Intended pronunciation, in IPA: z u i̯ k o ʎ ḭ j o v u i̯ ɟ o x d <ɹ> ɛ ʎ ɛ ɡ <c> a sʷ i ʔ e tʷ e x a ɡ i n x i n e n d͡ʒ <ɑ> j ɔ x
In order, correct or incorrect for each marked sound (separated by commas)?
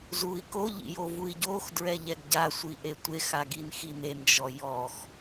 correct, incorrect, incorrect